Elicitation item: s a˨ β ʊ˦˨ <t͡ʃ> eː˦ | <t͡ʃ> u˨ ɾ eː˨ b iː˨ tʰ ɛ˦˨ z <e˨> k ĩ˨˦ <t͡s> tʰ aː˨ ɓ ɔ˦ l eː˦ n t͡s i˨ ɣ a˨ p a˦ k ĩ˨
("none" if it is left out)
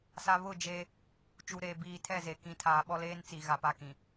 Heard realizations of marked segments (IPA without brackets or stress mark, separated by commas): d͡ʒ, t͡ʃ, e˨, none